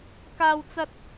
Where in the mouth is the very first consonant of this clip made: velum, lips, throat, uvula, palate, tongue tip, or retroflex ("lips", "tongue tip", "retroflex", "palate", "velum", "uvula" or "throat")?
velum